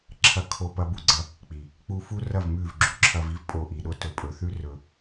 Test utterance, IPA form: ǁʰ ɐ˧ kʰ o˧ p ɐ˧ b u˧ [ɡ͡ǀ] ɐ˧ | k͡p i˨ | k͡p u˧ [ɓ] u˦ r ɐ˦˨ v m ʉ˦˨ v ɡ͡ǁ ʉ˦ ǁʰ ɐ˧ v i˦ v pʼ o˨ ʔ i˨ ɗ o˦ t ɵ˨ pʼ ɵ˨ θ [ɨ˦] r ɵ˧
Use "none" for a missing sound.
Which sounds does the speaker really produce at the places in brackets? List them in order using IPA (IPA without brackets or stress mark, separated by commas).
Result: ɡ͡ǀ, f, ʉ˦